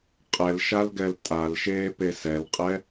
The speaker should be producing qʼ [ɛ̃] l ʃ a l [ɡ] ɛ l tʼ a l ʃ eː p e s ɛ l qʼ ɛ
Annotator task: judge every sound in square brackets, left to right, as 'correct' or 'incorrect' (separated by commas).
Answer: incorrect, correct